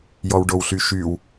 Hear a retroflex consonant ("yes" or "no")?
yes